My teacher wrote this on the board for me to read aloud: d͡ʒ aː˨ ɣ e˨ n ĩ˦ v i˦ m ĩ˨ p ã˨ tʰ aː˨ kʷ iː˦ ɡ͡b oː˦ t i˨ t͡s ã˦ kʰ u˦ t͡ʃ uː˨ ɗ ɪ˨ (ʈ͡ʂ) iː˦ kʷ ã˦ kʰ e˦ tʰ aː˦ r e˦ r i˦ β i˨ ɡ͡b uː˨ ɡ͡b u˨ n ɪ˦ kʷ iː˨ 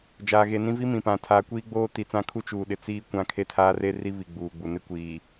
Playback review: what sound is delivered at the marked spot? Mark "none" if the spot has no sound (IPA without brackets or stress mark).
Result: t͡s